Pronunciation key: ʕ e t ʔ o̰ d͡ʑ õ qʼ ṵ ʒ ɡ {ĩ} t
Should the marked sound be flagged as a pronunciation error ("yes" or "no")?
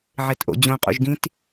no